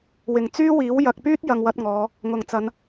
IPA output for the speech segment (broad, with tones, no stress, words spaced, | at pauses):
wɪ˨˩ŋt͡syː˥wiː˨˥w jɐ˨k̚pyː˥t̚ jɐ˧ŋwɐ˨˥t̚ŋɔː˨˧ | ŋʊ˨˩ŋt͡sɐ˨˧n